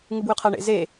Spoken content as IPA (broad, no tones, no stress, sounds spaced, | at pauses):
ŋ ɨ b w ʉ qʰ a ɳ ḛ z e